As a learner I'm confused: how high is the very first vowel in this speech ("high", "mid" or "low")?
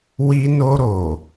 high